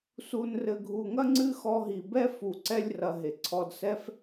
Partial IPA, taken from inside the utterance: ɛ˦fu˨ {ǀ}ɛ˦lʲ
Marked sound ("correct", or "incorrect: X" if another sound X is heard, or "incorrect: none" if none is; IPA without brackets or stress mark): correct